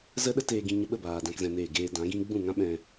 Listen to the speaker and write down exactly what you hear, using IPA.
z ə˦ ɗ ə˦ t eː˧ ɡ ĩ˧ ɲ ə˧ ɓ ə˦˨ b aː˨ d ã˦ k z ɛ̃˧ n eː˦˨ ɡ eː˧ d ã˨˦ ɡ ĩ˦ ɡ͡b ũ˦˨ ŋ ã˦ ɓ ɛ̃˧

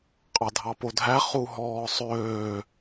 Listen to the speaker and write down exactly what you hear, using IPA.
qʼ ɑ dʱ ɑ p o dʱ æ χ u ɦ ɔː sˤ øː

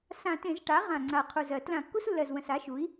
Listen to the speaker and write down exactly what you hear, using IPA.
s ã˧˩˧ t ẽ˧˩˧ z ʈ a˩˥ ʁ ã˨˩ ŋ͡ǀ a˨˩ qʰ u˨˩ z ɜ˧˩˧ t l ã˧˩˧ kː u˦ s lː ɜ˨˩ z w ə̃˨˩ s a˩˥ ʃ u˩˥ i̯

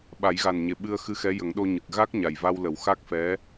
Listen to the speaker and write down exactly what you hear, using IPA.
ɓ a˨˩˦ j ɣ a˨˩ n ɲ e˨˩ ɓ ɨ˧ ə̯ x ɨ˧ x ɛ˧˥ j ə˨˩˦ ŋ ɗ o˧ ɲ ɨ˨˩ k̚ ɣ a˦˥ k̚ ɲ a˨˩ j v a˧ w l ə˨˩˦ w x a˦˥ k̚ f ɛ˧˥

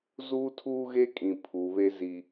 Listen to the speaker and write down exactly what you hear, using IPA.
z uː˦ tʰ uː˦ ɣ e˦ kʼ ĩ˨ pʰ u˨ β e˦ z i˦

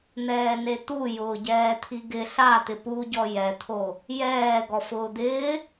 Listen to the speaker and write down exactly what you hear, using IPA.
n̪ ɛː n e t̪ u j ʊː ɟ ɛː t̪ʰ i ɡ ɪ ɬ a t̪ ɪ p u ɟ ɔ j ɛ t̪ʰ o | j ɛː ɡ ɔ f ʊː d̪ ɪː

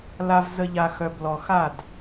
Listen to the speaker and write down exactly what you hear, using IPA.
l a˨ v z ə˨ ʎ a˨ x œ˨ b l ɔ˨ x a˦˨ d

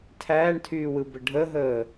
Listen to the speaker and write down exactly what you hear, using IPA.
tʰ æː ɳ tʰ yː w ɯ b ə ɖʱ ə ɦ əː

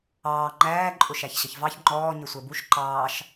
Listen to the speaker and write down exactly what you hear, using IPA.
ɑː ŋ͡ǃ æː ǃʼ ʊ ʃ æ ç ɕ ə ç v ɑ ç ŋ͡ǃ ɔː ɲ ɪ sʷ ɛ b u ʃ ǃ ɑː ʃ

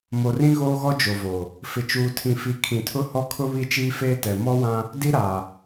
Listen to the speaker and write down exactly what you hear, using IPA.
m o˨ r ĩ˦ ɣ oː˦ ɣ ɔ˦ d͡ʒ o˨ v o˨ | f ɪ˨ t͡ʃ uː˨ tʰ ĩ˨ f i˨ kʰ ĩ˨ tʰ ʊ˦ h ɔ˦ kʰ ʊ˦ β i˦ t͡ʃ iː˦ f eː˦ t ɛ˨ m ɔ˦ w ã˦ | d i˦ ɾ a˨

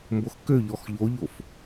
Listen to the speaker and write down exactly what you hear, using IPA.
m b o x k ø ʎ ɔ x ʎ o ʎ o f

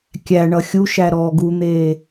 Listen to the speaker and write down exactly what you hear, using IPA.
kʲ æ ɳ ʌ xʲ u ʃ æ ɾ ɔː ɡ u n̪ eː

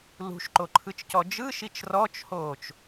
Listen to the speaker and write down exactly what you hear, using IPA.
l ṳ ʃ ǃ o ǃʰ ɯ t͡ʃ c ɔ d͡ʒ ɯ ʃ i t͡ʃ r ɔ t͡ʃ h oː t͡ʃ

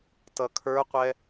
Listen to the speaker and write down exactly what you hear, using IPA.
t ʌ kʰ ə˞ qʷ ɛ

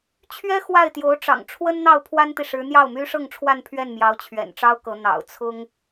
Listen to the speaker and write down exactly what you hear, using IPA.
t͡ɕʰ ɥ ɛ˥ x w a˥˩ ɪ̯ t̪ j o˧˥ ʊ̯ ʈ͡ʂ ɑ̰˨˩ ŋ ʈ͡ʂʰ w ə˥ n n̪ ɑ˥˩ ʊ̯ pʰ w a˥ n t̪ i˨ ʂ ɻ̩˧˥ n̪ j ɑ˥˩ ʊ̯ m y˥ ʂ ɤ˥˧ ŋ ʈ͡ʂʰ w a˥˧ n pʰ ɥ ɛ˥˩ n m j ɑ˧˥ ʊ̯ t͡ɕʰ ɥ ɛ̰˨˩ n ʈ͡ʂ ɑ˥ ʊ̯ k ɤ˧˥ n̪ ɑ̰˨˩ ʊ̯ t͡sʰ ʊ˥ ŋ

